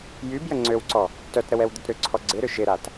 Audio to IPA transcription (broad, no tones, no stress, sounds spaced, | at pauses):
j y b j ə ŋ͡ǀ ø w ǀ ɔ | t œ t ɾ ə w ɛ w d̪ ʊ t ɾ ʏ ǀʰ ɔ ɡ͡ǀ ɪ ɾ ʏ ʃ ɪ ɾ a t